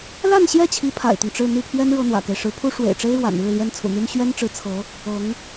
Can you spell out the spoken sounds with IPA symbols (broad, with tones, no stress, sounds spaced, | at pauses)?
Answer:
l a˥˧ n ɕ j ɛ˥˩ t͡ɕʰ i˧˥ pʰ a̰˨˩ ɪ̯ t̪ ʊ˦ ŋ ʈ͡ʂ ɻ̩˥˧ n̪ i˥˩ pʰ ɥ ɛ˥ n ɻ ɤ˥ n̪ w ä̰˨˩ k e˦ ɪ̯ ʂ ɻ̩˧˥ pʰ u˥ ʂ w ḛ˨˩ ɪ̯ ʈ͡ʂ e˥ ɪ̯ ɻ w a̰˨˩ n ɻ ɻ̩˥˩ l j ɛ˥ n t͡sʰ ṵ˨˩ n̪ y˥ n ɕ ɥ ɛ˥ n ʈ͡ʂ ɻ̩˧˥ t͡sʰ ɤ˧˥ | ɤ˧˥ ŋ